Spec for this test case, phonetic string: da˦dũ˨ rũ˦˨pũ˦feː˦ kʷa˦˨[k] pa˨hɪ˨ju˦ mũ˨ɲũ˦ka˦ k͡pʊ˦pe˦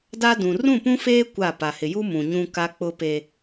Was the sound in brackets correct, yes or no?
no